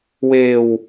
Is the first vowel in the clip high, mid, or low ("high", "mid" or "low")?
mid